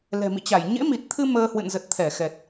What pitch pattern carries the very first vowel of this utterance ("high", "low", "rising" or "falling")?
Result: low